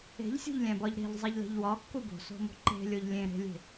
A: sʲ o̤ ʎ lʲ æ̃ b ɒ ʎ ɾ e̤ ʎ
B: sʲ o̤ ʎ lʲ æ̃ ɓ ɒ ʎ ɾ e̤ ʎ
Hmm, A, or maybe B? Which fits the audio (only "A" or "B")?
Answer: A